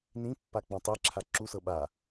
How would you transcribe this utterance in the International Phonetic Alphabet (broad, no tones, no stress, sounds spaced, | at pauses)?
n ĩ pː a k͡p ɔ̃ tˤ e ǁʰ a ǁ u s ɤ ɓ a